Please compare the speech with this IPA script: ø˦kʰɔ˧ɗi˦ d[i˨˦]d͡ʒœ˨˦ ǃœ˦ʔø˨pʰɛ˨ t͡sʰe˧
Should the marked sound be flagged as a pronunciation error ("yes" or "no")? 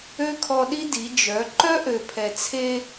no